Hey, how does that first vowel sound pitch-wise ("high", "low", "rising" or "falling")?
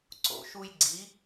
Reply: low